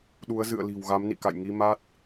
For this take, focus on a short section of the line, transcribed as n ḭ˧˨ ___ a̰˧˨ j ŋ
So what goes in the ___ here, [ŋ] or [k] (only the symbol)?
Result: k